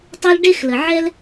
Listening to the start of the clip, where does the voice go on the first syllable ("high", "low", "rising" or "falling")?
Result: high